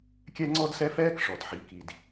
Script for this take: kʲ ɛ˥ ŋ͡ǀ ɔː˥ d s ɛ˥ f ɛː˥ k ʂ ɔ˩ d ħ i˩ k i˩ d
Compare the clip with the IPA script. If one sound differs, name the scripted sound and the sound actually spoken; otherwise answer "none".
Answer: ɔː˥ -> ɔ˥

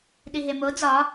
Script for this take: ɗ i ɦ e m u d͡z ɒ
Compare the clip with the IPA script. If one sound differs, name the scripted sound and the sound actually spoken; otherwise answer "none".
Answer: u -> o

